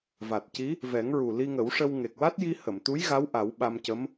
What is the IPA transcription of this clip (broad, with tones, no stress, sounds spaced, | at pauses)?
v a˨˩ t̚ c i˧˥ | v ɛ˨˩˦ ŋ ɹ u˨˩ l i˧ ŋ ə˨˩˦ w ʂ ə˧ w ŋ e˨˩ k̚ w a˦˥ t̚ j i˧ h ə˨˩˨ m t̪ u˧˥ j ɣ a˧˥ w ʔ a˨˩˦ w ɓ a˧ m c ə˧˥ m